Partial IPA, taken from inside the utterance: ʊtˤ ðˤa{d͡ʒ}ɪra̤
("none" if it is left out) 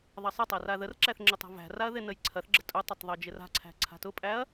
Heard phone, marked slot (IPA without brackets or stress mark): d͡ʒ